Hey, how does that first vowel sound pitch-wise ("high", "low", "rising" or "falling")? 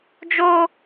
high